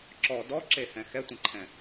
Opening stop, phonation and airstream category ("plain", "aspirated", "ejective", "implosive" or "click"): click